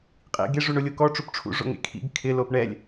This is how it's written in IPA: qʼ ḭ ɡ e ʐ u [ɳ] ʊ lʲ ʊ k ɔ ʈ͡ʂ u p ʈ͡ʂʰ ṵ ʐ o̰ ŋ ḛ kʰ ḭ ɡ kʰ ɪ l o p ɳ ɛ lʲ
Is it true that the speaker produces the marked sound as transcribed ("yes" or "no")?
yes